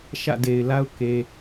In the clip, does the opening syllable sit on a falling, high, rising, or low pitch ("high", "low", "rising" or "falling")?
falling